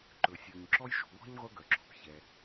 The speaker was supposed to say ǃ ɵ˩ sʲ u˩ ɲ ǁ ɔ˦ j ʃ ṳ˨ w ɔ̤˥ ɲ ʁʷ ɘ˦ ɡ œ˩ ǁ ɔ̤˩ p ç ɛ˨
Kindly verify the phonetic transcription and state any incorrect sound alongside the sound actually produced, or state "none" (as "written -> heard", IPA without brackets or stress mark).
none